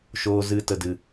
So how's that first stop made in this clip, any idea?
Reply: plain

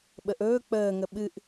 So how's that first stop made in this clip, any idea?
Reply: implosive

